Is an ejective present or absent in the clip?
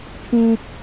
absent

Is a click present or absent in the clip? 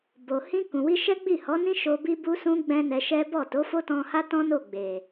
absent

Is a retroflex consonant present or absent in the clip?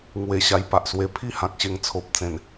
absent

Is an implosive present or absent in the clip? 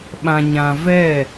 present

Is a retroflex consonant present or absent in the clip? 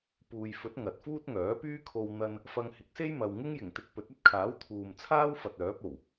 absent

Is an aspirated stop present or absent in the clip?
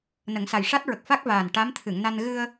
present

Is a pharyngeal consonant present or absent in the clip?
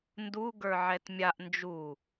present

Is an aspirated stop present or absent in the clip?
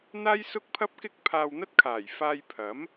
present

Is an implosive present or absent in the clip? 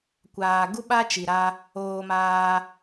present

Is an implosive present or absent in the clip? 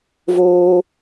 absent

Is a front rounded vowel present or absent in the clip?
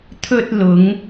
absent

